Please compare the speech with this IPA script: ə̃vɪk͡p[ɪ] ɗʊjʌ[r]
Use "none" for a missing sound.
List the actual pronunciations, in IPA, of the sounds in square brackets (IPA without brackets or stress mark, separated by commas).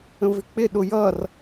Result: ɪ, r